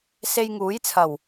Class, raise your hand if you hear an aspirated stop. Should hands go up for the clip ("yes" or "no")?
yes